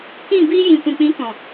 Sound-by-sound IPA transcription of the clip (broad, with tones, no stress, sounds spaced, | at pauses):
k ĩ˦˨ b iː˧ j ĩ˨ kʷ ĩ˨ k͡p ĩ˨˦ k ɔ̃˨